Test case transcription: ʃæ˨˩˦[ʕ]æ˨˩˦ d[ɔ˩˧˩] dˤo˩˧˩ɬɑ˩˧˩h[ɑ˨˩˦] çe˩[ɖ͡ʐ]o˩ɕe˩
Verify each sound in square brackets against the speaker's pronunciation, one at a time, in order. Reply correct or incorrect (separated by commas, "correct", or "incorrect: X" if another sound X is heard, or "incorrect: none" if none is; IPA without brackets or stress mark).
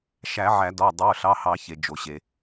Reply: correct, correct, correct, incorrect: d͡ʒ